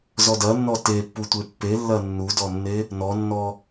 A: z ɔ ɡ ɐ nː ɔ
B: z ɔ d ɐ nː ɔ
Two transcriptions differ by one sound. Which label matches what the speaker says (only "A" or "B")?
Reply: B